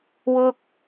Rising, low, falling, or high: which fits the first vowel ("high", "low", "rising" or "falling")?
high